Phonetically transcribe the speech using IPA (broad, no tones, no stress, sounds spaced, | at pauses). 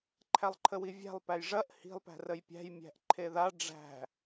ǃʰ æ lˠ ǃʰ ə w i vʲ æ̤ lˠ p æ j ʐ ɐ ʔ h i̤ lˠ p æ̤ r ə j pʲ æ̤ j mʲ æ̤ ʔ ǃʰ e ð a ɖ͡ʐ æ̤